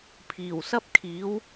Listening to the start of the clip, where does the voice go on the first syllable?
low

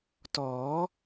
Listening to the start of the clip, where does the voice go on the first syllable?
rising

